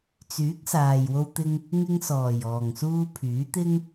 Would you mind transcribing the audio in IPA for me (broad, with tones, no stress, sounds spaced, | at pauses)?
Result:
t͡s yː˨˥ k̚ s aː˨ j w o˧ w t̪ ɪ˧ ŋ | ŋ ɪ˧ ŋ s ɔː˨˩ j ɔː˨˩ ŋ s uː˧ pʰ yː˨˥ t̪ ɪ˥ ŋ